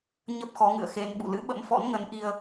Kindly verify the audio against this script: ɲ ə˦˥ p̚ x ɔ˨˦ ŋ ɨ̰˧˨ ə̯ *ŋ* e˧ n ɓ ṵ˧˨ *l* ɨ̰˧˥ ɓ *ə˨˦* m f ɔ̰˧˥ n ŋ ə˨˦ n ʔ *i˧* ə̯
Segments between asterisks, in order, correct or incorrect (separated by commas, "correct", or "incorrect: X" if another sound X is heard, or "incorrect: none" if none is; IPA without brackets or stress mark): incorrect: x, correct, incorrect: ə̰˧˥, correct